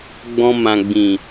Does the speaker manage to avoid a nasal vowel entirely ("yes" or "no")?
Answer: no